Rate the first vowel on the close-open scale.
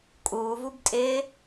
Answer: close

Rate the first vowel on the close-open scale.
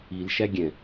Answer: close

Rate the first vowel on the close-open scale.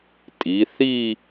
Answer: close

